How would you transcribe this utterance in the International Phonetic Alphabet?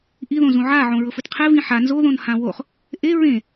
ʔiðõ zũʕa ʕõɹɤfɯtqʰe vĩħa nzoðõn hãwoχ | ʔe ɹẽ

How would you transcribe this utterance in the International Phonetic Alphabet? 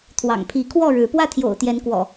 t̪ʰwɑ̰˨˩ŋpʰi˨˦kʰwɔ˥˨ɻɻ̩˨˦ pwä˥˨t̪ʰjo̰˨˩ʊ̯t̪jɛ˨˦nkwɔ̰˨˩

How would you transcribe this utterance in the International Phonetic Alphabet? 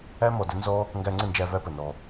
æ˦mɔ˨də˦nzɔ˦ | ŋɡæ˧ŋ͡ǀə˦˨nd͡ʒæ˧ væ˦pə˨nɔ˧

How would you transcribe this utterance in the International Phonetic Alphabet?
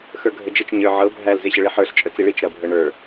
xə˞ɡʱəd͡ʒət͡ʃ ɲə˞ʕɤ bʱæl zeɕəɭiħə˞ɬ t͡ʃʼət͡siɭit͡ʃ ɾɐ bʱɤɳə˞

